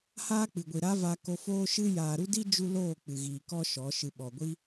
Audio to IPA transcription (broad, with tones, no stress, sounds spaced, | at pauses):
h aː˦ k͡p ɨ˨ ɡʷ i˨ ɾ a˦ v a˧ k o˧ f oː˦ ʃ ɨ˦ j aː˨ ɾ u˦ d i˦ d͡ʒ u˦ l oː˦˨ k͡p ɨ˨ ɣ iː˨ k ɔ˦ ʃ ɔ˨˦ ʃ ɨ˨ ɓ ɔ˨ ɡʷ i˦